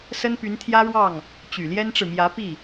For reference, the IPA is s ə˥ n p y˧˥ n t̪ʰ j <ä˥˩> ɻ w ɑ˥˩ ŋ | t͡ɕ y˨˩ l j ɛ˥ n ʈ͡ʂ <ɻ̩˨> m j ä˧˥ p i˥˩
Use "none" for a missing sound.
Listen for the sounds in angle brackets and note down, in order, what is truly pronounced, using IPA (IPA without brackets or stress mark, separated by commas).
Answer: ä˥, ɻ̩˨